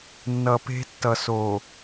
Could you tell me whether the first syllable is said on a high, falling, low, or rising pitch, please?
low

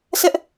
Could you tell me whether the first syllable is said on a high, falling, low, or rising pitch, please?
high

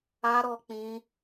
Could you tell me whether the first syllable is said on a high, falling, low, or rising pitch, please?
high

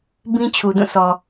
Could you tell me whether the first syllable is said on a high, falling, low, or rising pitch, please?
high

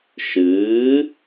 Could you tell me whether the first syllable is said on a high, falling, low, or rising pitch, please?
rising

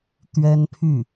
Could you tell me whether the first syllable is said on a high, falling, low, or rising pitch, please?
high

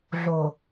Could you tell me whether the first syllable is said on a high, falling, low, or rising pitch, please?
low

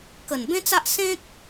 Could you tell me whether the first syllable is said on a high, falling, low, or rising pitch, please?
low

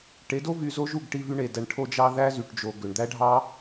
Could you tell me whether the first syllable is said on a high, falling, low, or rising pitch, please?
rising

